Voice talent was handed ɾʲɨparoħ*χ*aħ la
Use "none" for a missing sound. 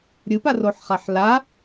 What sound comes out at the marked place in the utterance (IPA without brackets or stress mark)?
χ